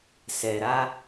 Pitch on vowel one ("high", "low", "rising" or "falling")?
low